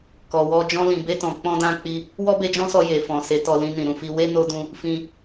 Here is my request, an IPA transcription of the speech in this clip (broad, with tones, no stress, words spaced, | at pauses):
kɔ˨wɔ˧ d͡ʒɔ̃˧lĩ˨be˧tɔ̃˨ k͡pɔ̃˧dã˧k͡pi˧ | wɔ˦be˧d͡ʒɔ̃˦sɔ˧ je˨fɔ̃˨ se˨˦tɔ˧lĩ˧nĩ˨ ɾũ˨fi˧ we˦ no˧dũ˧ | fĩ˧